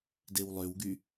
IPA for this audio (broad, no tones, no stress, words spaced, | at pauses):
dewlˠøwɡy